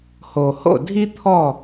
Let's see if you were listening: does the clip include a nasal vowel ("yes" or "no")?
no